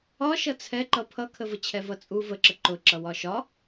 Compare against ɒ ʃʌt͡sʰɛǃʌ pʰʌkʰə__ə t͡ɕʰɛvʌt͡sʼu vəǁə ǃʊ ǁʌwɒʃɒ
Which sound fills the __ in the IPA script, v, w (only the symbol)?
v